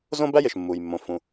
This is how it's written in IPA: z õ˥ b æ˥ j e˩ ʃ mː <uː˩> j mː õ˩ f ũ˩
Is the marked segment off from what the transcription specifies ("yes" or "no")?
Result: no